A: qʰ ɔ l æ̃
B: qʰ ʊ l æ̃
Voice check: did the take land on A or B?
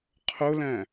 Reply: B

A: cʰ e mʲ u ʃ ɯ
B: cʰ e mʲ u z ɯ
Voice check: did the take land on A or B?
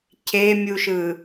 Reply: A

